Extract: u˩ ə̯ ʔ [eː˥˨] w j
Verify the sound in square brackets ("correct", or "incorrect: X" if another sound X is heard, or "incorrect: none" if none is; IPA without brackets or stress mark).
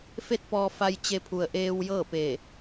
incorrect: eː˧